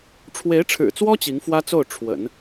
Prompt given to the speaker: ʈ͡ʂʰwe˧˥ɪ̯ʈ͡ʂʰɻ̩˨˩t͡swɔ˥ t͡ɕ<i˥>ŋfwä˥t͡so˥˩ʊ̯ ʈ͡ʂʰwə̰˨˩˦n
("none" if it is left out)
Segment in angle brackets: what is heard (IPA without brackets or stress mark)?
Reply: i˧˥